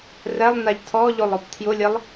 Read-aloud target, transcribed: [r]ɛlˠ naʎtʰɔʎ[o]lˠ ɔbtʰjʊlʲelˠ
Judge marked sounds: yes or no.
yes, yes

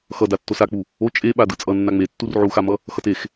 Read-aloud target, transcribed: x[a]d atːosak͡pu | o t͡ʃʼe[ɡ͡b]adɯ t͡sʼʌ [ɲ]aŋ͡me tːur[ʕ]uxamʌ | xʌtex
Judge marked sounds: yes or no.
no, no, no, yes

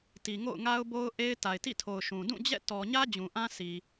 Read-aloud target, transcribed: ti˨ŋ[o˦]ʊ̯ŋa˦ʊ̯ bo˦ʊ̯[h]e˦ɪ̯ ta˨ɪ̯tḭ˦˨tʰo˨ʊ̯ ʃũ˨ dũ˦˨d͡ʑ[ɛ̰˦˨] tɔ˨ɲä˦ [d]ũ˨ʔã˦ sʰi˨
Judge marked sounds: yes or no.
no, no, yes, no

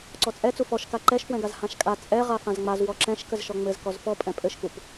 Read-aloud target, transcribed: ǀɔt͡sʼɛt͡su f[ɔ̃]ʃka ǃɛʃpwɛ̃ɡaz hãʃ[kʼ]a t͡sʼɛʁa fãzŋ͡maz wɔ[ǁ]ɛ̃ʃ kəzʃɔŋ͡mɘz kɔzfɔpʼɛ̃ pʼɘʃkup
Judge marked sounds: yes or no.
no, yes, yes

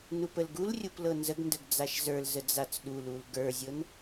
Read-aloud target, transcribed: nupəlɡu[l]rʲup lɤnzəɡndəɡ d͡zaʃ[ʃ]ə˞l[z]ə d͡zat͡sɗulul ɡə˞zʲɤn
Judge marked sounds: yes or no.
yes, no, yes

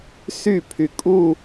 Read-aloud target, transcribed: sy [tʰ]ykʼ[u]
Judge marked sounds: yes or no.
no, yes

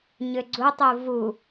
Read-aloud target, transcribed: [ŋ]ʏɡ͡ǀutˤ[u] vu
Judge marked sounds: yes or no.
no, yes

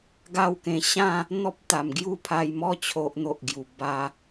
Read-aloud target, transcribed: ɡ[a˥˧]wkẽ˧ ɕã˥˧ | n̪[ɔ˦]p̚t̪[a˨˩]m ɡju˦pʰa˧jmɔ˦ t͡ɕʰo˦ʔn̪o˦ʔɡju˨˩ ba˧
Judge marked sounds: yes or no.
yes, yes, yes

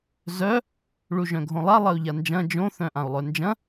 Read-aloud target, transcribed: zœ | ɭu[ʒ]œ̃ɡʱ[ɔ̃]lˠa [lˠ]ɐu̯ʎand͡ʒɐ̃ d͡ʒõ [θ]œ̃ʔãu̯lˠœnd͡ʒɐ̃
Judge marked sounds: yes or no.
yes, no, yes, yes

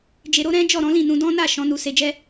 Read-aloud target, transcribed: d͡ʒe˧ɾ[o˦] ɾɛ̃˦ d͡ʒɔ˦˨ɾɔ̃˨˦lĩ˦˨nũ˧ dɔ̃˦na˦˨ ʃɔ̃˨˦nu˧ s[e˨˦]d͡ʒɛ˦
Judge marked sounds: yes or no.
yes, no

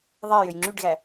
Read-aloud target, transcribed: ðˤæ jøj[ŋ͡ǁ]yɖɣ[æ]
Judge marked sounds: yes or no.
yes, yes

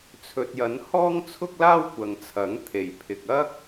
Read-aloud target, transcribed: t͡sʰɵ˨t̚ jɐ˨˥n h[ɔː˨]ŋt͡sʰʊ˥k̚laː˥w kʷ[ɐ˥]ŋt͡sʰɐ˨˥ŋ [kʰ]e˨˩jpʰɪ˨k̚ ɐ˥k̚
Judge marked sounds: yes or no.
no, no, no

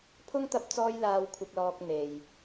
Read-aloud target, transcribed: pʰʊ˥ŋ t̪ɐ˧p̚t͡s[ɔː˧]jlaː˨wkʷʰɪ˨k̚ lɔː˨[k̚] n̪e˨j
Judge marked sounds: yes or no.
yes, yes

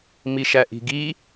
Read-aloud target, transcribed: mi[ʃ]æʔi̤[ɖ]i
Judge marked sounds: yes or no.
yes, no

